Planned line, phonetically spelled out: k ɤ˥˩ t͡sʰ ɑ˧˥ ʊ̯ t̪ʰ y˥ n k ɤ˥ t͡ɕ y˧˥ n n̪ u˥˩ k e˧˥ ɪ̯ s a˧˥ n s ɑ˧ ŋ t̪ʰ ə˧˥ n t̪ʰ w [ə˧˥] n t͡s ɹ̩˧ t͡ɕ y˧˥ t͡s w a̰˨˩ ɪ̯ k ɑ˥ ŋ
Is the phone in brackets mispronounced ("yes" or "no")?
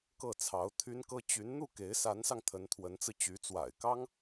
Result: no